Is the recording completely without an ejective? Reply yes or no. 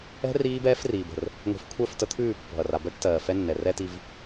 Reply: yes